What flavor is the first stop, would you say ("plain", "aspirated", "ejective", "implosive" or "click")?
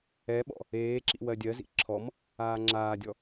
implosive